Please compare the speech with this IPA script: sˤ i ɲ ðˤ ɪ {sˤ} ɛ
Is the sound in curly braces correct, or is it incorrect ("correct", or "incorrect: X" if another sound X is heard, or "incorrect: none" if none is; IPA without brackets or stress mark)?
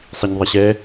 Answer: incorrect: ɕ